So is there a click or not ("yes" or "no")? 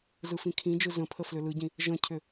no